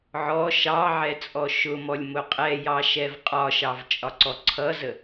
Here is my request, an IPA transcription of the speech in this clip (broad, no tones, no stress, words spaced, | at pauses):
ʕɔ ʃɑʕɛ t͡sʼɔʃʊmɔlʲ mʊqʼɛjɑ ʃɛvqʼɒʃɑv t͡ʃʼɒǀɔǀʰʌzə